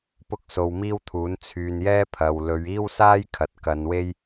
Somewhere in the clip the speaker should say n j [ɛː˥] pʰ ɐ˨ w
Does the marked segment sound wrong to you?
no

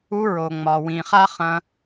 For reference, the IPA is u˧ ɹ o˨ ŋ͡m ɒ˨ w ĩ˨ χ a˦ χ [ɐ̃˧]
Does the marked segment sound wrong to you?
no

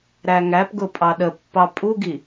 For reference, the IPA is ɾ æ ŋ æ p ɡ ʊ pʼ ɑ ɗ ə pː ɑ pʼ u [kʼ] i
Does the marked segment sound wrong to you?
yes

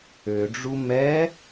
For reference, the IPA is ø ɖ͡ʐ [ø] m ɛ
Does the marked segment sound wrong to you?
yes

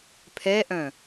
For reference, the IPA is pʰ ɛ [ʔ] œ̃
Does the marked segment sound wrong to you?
no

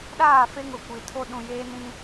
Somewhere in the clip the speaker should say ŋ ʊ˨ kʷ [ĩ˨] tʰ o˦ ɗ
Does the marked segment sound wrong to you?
yes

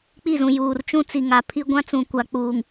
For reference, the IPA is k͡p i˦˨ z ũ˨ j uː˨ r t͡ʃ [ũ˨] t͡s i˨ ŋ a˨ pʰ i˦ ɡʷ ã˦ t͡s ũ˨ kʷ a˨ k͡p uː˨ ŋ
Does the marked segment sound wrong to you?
yes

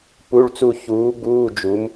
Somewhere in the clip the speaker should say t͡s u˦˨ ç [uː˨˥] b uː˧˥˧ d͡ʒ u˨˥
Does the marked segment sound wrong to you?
no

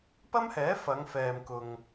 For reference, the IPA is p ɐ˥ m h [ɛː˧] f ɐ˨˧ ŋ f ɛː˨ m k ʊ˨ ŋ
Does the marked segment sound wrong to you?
yes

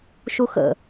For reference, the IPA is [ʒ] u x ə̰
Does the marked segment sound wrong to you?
yes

